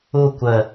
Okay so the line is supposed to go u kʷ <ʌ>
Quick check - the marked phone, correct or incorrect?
incorrect: ə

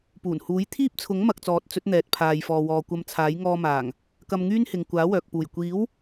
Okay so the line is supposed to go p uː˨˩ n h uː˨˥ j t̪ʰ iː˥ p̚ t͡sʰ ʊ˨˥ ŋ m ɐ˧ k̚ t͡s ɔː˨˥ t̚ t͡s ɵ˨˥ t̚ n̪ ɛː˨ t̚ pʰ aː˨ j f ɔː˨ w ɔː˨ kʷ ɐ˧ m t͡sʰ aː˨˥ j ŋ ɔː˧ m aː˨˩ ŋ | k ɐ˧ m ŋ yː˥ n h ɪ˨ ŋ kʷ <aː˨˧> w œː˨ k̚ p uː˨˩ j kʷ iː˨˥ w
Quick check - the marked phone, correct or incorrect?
incorrect: aː˨˥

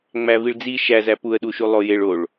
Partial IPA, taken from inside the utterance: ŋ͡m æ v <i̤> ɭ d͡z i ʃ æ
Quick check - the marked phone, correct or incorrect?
incorrect: i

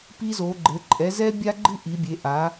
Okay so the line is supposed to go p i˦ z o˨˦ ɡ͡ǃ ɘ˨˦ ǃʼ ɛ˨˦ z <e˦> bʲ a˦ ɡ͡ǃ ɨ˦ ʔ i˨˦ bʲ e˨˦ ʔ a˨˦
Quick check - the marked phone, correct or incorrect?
incorrect: ɛ˦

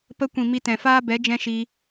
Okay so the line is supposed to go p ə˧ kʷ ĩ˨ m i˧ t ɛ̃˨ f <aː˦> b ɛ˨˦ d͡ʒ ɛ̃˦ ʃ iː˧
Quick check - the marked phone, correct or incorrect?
correct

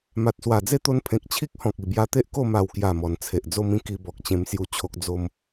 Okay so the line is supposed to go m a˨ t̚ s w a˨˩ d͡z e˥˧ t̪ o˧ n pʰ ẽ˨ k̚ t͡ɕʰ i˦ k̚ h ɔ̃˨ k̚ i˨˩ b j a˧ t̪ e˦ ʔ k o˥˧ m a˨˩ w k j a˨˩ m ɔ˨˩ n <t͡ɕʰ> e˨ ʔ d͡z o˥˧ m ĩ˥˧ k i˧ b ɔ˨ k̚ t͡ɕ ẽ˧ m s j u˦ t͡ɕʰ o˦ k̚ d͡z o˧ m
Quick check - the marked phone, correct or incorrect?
incorrect: t͡sʰ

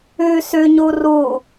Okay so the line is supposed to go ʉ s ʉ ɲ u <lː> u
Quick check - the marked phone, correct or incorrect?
incorrect: r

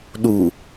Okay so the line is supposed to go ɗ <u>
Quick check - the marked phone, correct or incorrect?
correct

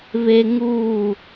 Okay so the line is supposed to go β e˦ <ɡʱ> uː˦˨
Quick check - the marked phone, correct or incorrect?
incorrect: ŋ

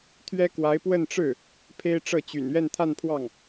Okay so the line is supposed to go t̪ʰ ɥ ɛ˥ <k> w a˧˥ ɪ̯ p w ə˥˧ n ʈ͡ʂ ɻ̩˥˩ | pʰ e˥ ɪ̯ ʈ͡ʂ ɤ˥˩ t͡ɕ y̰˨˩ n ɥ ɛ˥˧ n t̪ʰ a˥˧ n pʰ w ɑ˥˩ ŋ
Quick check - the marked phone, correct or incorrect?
correct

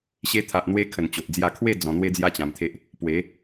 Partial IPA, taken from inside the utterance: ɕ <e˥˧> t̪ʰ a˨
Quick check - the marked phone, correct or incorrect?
incorrect: e˧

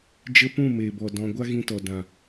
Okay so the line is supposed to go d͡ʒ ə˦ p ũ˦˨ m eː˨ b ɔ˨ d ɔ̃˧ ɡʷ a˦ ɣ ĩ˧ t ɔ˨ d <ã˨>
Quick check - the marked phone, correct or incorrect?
correct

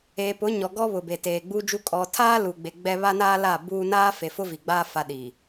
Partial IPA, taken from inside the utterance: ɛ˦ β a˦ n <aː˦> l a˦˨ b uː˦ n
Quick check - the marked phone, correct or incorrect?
correct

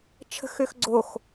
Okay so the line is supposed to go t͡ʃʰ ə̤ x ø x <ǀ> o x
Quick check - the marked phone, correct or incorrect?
incorrect: ɡ͡ǀ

